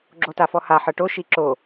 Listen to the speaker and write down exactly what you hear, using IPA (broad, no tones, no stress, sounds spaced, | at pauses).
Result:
ɡ͡ǁ o t a f ɔ h a ħ ɤ ʈ o ʃ i ǁ o